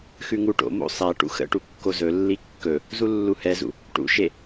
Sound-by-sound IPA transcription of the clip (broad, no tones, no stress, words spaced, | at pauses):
xʉŋuʈo̰mo̰ sˤæ ʈṵxə̰ʈu kːozɵlːi kːɵ | zulːuhɛzṵ | ʈṵʃe